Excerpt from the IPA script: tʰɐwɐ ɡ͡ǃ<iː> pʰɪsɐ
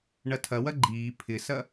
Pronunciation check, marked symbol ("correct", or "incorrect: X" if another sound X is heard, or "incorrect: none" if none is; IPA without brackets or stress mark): correct